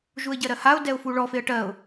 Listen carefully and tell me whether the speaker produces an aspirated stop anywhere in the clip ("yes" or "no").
no